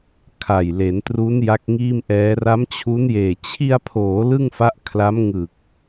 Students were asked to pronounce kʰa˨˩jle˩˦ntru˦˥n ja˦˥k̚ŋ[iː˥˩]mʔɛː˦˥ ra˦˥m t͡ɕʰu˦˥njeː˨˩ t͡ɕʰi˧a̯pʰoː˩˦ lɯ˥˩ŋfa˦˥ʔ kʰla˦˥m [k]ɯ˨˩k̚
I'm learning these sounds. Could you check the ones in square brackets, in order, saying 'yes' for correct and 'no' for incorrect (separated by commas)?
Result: yes, no